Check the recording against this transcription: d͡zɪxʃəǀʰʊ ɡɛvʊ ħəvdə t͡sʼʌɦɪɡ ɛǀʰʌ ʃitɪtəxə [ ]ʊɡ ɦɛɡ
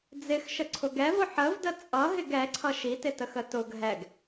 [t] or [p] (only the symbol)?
t